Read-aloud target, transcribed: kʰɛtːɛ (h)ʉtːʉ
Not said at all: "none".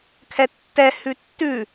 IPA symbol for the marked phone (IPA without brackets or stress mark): h